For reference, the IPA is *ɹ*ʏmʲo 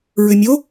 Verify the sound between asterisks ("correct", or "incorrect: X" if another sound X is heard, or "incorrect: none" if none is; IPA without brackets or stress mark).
correct